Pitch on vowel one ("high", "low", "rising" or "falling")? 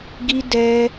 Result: high